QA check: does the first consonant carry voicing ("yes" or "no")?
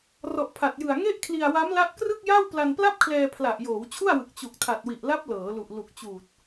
yes